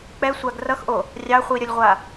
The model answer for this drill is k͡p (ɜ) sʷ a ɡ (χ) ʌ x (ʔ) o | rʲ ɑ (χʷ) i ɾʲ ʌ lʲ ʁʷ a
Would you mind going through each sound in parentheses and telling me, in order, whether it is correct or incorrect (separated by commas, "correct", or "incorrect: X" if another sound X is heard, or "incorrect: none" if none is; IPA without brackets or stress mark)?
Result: incorrect: ɛ, incorrect: r, correct, correct